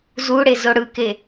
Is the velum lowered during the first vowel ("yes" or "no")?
no